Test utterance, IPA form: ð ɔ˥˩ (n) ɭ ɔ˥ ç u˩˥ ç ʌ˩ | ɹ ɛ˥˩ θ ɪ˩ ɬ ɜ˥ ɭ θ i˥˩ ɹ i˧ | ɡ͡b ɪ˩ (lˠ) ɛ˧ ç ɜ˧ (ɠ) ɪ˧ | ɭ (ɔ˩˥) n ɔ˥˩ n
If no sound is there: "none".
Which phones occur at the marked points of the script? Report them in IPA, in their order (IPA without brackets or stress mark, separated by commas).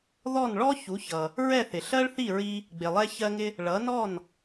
n, lˠ, ŋ, ʌ˩˥